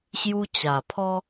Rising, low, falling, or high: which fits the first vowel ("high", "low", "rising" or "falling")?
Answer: high